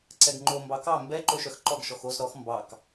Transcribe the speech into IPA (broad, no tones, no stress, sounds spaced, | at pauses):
ǀ ɛ ɡ ŋ͡ǃ o m b ɑ k ɑ m b ɛ ǃ o ʃ œ x ǃ ɔ ɡ ʃ ɔ x o z ɾ ɔ x m b ɑ k